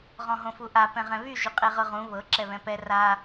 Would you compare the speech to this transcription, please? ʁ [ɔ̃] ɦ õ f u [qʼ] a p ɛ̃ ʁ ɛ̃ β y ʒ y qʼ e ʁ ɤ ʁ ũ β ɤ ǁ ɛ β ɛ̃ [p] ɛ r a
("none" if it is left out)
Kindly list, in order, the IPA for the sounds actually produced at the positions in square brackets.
ɔ̃, ʔ, p

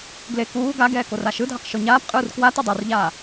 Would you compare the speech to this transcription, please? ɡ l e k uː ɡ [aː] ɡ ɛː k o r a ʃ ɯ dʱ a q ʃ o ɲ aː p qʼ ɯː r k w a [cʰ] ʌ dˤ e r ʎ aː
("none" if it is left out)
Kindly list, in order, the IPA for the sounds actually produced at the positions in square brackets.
a, t

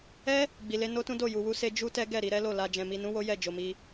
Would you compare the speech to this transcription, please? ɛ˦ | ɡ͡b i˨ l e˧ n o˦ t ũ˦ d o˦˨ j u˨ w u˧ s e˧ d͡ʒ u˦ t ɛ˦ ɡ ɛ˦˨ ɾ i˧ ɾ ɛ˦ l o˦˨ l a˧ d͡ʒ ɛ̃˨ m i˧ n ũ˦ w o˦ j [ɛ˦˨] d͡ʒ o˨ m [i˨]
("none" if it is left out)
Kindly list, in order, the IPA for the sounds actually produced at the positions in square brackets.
ɛ˦˨, i˧

